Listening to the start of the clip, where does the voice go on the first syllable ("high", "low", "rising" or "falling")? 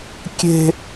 high